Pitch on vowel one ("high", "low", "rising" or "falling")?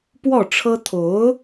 falling